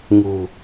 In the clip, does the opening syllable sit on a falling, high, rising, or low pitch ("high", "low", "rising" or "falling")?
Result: low